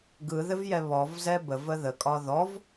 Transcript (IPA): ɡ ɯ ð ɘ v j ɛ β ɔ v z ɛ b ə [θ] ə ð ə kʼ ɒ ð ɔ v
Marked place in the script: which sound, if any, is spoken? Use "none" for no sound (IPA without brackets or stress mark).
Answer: v